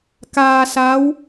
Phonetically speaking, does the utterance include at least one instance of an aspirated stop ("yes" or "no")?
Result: no